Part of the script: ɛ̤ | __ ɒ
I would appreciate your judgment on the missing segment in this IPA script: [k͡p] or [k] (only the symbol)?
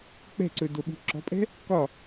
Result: k